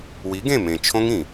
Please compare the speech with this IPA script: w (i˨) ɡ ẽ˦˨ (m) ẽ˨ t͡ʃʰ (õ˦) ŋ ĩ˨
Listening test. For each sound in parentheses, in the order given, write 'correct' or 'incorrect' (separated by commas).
incorrect, correct, correct